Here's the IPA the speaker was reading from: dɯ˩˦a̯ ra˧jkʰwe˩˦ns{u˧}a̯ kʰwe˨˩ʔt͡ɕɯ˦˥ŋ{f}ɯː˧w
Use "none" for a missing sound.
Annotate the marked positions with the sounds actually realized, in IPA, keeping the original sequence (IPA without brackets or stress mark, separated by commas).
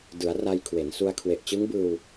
u˧, b